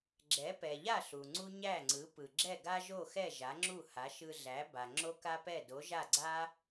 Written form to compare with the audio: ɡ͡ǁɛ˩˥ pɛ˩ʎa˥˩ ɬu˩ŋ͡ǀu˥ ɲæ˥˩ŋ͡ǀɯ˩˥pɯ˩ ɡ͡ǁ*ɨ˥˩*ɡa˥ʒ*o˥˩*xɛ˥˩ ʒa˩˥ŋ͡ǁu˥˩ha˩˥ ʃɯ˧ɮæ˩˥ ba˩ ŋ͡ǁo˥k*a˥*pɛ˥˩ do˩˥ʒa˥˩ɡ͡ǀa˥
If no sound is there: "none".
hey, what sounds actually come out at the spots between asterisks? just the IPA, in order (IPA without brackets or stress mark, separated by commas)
ɛ˥˩, o˥˩, a˥